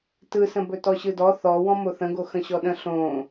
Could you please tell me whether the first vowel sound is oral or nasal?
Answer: oral